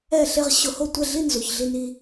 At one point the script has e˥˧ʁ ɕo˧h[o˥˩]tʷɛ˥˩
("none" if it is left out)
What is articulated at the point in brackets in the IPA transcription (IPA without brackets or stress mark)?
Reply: o˥˩